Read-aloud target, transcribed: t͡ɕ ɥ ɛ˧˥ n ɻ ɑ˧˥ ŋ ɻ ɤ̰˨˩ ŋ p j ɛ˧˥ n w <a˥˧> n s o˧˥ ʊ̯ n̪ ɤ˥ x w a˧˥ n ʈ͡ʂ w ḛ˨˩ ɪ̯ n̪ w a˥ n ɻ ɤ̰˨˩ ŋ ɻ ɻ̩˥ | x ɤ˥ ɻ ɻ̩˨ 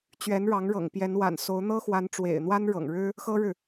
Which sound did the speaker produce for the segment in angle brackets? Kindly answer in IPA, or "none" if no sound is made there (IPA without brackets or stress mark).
a̰˨˩